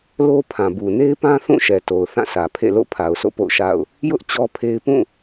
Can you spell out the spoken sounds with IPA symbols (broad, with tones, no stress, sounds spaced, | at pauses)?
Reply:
l o˦ pʰ ã˨ b u˨ n e˦ ɪ̯ p ã˦ θ ũ˦˨ ʃ ɛ˨ t o˨ ʊ̯ θ ã˦˨ sʰ ä˨ pʰ ḛ˦˨ l o̰˦˨ pʰ a˨ ʊ̯ sʰ o̰˦˨ p o̰˦˨ ʊ̯ ʃ a̰˦˨ ʊ̯ | j ʊ˦ ʔ t͡ɕ ɔ˦ pʰ e˦ ɪ̯ p ũ˦˨